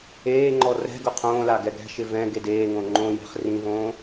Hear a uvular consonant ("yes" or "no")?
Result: yes